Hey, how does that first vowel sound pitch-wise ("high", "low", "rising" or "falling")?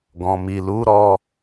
low